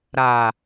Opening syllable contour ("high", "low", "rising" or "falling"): low